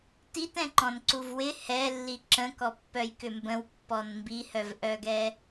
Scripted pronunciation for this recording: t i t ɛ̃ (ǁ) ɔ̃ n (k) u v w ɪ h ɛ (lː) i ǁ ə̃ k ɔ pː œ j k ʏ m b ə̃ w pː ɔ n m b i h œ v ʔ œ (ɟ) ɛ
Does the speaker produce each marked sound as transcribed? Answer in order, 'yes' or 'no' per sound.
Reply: no, no, yes, no

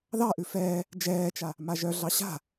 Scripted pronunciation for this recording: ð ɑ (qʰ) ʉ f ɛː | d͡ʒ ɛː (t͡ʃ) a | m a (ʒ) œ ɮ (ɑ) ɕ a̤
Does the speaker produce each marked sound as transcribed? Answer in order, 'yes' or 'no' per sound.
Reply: no, yes, yes, yes

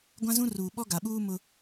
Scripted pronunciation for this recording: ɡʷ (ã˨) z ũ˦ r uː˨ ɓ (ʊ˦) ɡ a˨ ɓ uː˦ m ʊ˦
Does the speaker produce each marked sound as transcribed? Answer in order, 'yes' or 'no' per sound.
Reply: no, no

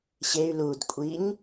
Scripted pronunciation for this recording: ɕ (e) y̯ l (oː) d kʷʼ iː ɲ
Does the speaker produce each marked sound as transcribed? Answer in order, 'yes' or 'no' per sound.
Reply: yes, no

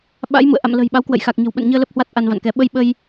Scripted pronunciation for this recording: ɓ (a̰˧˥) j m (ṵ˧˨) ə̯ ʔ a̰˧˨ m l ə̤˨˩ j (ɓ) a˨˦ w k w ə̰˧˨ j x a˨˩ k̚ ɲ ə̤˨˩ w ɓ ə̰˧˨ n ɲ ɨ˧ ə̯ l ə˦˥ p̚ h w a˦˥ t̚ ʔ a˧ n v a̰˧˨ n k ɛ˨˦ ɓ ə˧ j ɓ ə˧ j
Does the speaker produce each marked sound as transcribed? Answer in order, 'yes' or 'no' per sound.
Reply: yes, yes, yes

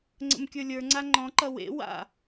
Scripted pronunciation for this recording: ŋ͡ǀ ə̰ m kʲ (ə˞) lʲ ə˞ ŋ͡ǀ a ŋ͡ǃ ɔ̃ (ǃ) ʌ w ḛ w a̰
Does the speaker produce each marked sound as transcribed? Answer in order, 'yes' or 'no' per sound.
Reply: yes, yes

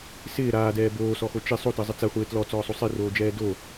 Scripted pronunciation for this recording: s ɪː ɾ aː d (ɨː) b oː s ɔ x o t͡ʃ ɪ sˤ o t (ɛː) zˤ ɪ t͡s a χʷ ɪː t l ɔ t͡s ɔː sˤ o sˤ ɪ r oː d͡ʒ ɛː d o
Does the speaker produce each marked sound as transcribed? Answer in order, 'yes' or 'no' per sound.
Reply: no, no

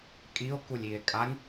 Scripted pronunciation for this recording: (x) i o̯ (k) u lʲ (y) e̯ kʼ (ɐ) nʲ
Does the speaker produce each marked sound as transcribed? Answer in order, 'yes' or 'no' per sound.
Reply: no, yes, no, no

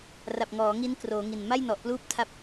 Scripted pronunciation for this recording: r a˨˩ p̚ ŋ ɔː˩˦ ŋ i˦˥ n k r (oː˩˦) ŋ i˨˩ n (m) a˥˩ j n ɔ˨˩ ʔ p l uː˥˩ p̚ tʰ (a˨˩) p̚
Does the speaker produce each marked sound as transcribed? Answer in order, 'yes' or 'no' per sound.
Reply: yes, yes, no

